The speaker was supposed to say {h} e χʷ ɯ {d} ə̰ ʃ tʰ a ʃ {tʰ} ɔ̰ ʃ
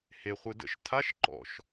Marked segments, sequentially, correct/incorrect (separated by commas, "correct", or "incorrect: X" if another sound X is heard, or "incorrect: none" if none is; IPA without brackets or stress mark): correct, correct, incorrect: ǃ